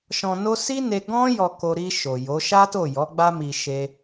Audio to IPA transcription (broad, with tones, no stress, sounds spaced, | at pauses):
ʃ ɔ̃˨ n o˧ s i˦ n e˧ ɡ ɔ̃˦ j ɔ˧ k o˧ ɾ i˧ ʃ o˨ j o˨˦ ʃ a˦ t o˦˨ j ɔ˨˦ ɡ͡b a˧ m i˨ ʃ e˧